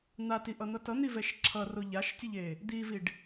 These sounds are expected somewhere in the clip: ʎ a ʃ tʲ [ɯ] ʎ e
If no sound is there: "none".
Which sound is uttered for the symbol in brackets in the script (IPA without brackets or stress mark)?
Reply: ɯ